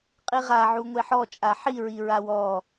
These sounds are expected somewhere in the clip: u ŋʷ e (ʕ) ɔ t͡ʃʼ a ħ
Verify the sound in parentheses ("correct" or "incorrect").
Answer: incorrect